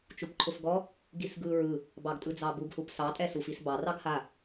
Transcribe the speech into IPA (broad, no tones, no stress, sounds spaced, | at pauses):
t͡ʃ u p ǃʰ ʊ f ɡ ɔ | ɡ i s ɡ ɯ ɹ ɯ | b ɑ ɡ tʼ ɯ d͡z ɑ b u ɡ h u p s ɑ tʼ ɛ s u f i s b ɑ r ɑ ɡ h a